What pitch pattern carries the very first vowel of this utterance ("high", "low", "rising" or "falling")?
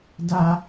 low